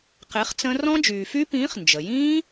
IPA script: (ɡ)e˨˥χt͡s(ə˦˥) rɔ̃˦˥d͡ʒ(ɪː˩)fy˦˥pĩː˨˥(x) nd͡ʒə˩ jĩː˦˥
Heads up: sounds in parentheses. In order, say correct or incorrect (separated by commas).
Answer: incorrect, incorrect, incorrect, incorrect